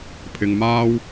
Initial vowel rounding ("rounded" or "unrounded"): unrounded